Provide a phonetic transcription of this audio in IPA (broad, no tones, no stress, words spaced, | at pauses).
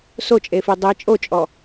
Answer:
sot͡ʃʼefi dˤi t͡ʃʼot͡ʃʼɔ